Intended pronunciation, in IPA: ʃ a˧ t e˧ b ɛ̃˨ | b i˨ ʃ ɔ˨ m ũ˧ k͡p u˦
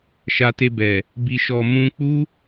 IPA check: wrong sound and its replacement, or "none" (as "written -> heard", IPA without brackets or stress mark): ɛ̃˨ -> ɛ˨